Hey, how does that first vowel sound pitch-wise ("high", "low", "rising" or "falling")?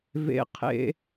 high